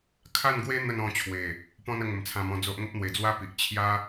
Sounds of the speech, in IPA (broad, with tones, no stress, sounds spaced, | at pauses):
kʰ a˥˧ n ɡ w e˦ n̪ ə˥˧ n ɔ̃˧ t͡ɕʰ w e˨˩ | p ɔ̃˦ n ə˧ ŋ ə˨˩ m t͡sʰ ã˧ m ɔ̃˧ d͡z o˦ ʔ ŋ ə˦ p̚ n̪ w e˨˩ d͡z w a˦ p i˨ ʔ t͡ɕʰ j a˦